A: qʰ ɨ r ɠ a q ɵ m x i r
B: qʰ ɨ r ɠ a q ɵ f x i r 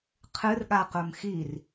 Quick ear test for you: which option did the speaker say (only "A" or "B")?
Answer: A